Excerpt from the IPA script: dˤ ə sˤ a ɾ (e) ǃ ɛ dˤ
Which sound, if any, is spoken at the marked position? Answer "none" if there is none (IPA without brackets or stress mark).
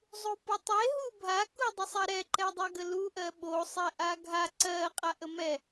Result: ɛ